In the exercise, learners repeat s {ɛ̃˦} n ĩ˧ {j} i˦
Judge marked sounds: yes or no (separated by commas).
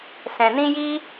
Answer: no, yes